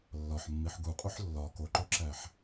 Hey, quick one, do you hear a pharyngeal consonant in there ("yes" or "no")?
yes